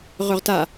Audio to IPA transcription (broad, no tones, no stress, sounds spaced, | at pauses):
ʁ ɵ ʁ t a